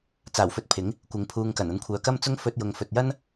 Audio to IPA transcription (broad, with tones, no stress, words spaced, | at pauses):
t͡saː˨˩wfɵ˧t̚ pʰɪ˨˥ŋ | kʷɪ˨ŋpʰuː˧ŋkɐ˨˩n ɐ˧nkʷʰœː˨kɐ˥m t͡sʊ˧ŋfɵ˨t̚ jʊ˨ŋfɵ˨t̚jɐ˥n